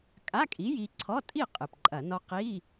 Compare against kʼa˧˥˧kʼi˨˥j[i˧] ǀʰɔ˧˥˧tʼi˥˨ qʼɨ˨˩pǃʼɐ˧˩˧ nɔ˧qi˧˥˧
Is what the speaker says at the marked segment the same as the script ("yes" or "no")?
yes